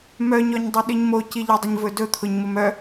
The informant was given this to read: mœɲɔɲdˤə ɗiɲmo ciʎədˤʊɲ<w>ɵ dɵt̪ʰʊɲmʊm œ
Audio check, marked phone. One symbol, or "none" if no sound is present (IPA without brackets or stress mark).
v